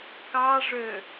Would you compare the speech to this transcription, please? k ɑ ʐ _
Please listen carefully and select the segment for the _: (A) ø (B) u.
A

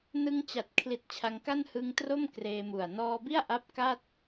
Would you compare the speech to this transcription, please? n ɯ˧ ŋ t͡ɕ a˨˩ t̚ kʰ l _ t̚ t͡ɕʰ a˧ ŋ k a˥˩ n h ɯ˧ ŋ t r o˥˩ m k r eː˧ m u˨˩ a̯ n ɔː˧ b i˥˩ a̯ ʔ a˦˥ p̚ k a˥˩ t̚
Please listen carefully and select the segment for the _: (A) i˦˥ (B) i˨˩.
B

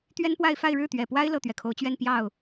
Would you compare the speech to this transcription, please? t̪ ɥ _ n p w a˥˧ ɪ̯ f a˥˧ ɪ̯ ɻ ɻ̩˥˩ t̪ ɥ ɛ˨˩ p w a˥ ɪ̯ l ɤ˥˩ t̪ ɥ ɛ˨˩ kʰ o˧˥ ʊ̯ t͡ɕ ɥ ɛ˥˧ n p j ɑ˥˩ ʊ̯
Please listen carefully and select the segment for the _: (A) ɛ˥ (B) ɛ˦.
A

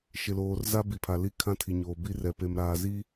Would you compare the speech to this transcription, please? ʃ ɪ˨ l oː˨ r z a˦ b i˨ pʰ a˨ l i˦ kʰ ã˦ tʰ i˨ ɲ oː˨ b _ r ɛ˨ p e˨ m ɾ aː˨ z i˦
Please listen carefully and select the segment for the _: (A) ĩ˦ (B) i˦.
B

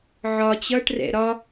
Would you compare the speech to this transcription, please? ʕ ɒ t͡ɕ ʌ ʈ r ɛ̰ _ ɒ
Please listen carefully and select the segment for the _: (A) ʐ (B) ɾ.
B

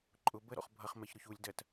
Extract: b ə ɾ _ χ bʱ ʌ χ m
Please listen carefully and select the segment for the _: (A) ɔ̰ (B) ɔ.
A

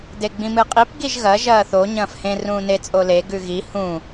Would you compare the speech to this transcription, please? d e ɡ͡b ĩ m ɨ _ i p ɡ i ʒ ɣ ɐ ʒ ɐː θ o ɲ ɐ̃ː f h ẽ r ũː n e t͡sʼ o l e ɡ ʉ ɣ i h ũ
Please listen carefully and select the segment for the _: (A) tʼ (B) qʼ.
B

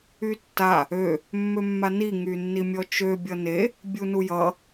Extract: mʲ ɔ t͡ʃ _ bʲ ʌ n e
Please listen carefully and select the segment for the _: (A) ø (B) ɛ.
A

